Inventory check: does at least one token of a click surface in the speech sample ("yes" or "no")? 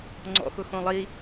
yes